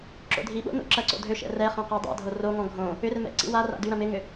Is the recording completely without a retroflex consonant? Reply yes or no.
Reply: yes